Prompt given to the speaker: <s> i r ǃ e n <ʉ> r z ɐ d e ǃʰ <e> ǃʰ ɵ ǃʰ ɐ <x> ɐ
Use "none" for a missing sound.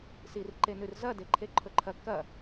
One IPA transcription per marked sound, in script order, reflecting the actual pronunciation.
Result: s, ʉ, e, k

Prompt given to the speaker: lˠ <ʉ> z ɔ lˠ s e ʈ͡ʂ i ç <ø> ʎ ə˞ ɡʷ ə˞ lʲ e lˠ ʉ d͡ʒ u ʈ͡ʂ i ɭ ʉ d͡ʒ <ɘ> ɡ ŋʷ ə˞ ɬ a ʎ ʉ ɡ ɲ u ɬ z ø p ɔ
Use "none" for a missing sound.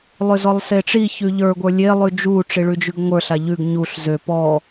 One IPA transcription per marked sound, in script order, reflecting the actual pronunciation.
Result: ø, ʉ, ʉ

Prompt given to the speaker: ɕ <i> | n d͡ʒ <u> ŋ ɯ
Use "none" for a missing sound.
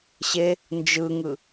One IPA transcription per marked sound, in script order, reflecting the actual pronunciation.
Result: e, ɯ

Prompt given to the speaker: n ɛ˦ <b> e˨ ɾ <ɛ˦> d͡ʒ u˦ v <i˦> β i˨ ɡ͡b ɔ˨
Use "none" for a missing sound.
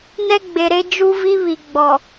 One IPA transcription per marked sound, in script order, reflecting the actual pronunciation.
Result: ɡ͡b, e˦, i˦

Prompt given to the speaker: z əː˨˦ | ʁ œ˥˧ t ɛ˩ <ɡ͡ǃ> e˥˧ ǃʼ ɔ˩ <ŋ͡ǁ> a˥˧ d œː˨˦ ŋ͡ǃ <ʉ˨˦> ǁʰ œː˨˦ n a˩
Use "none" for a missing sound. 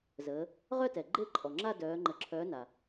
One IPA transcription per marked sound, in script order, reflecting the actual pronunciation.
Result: ɡ͡ǃ, ŋ͡ǁ, ə˨˦

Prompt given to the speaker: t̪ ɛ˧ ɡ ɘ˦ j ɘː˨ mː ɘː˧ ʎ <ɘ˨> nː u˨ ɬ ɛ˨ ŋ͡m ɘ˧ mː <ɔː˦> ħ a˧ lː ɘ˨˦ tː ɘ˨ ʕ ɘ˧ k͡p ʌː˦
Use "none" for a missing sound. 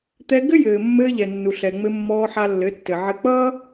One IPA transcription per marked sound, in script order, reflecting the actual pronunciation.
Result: ɛ˨, ɔː˧

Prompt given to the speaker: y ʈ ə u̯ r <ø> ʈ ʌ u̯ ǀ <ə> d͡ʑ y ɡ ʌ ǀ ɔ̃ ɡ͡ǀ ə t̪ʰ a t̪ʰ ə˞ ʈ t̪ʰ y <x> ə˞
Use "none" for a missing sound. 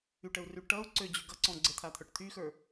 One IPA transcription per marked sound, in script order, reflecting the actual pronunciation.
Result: y, ø, x

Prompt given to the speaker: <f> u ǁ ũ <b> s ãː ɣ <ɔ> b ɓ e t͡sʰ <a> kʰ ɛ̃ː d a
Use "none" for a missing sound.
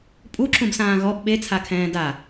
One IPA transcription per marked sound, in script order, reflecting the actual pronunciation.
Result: pʼ, b, ɔ, a

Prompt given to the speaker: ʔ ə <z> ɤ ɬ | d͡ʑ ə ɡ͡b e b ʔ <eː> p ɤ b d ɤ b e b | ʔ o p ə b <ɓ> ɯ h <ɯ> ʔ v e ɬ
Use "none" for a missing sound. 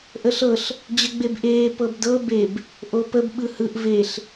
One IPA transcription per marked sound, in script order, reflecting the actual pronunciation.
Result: ɬ, eː, ɓ, ɯ

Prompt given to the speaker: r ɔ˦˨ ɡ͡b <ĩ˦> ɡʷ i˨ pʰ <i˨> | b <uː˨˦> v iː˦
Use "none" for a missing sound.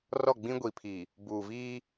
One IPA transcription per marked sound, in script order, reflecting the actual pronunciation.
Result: ĩ˦, i˨, uː˨

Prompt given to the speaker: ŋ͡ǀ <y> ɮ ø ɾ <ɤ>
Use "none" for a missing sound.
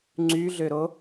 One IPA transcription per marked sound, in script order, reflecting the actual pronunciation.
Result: y, o

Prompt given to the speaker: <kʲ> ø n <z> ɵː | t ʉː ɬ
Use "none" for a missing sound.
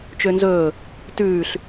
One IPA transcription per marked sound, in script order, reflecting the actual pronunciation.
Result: t͡ʃ, z

